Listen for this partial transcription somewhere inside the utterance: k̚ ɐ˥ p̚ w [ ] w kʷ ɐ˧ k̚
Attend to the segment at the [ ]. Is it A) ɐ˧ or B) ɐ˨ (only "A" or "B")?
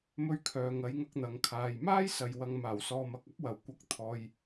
B